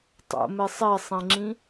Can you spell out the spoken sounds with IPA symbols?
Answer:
tˤ o̰ m e sˤ e sˤ ẽ ŋ͡ǁ ĩ

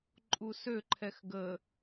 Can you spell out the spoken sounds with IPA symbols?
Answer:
ǃʼ u s ø ǃʰ ɛ x ɡ ə

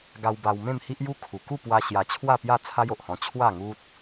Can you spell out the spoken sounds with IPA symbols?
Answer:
ɡ a˧ w b a˧ w m ẽ˥˧ m h i˦ ʔ j u˦ kʰ u˨˩ k u˥˧ p w a˧ ɕ j a˧ t͡ɕʰ w a˥˧ p j a˥˧ t͡sʰ a˦ j o˨ ʔ h ɔ̃˧ t͡ɕʰ w a˥˧ ŋ u˦ t̚

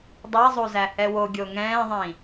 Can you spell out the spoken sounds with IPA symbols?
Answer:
dˤ ɛ zˤ u z æ h ɛ w o ɡʲ o ŋ ɛ̃ː ðˤ ĩ

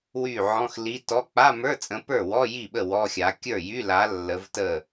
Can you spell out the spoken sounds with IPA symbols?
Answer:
w y˥˩ ʕ ɔ̃˧˥˧ x l i˧˥˧ t ɔ˧˥˧ k͡p a˧˥˧ m ə˞˧˥˧ t͡sʼ ə̃˨˦ p ə˞˥˩ w ɔ˧˥˧ j i˥˩ ɓ ə˥˩ w ɔ˧˥˧ xʲ a˨˦ kʲ ə˞˥˩ j y˧˥˧ l a˨˦ lː ə˨˦ v t ə˥˩

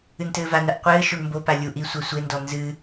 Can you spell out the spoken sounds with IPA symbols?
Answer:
ɨ n t ɘː v a n ɐ ʔ qʷ ɘː ʃ o ɳ m b o p a lʲ u ʔ i sʷ ɛ sʷ e n d ɔ n z ɨ

